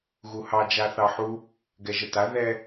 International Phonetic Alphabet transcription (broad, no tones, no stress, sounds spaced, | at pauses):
ɣ u h ɑ d͡ʒ a θ ɑ ħ u | ɡ ɛ ʒ ə t a ð ɛ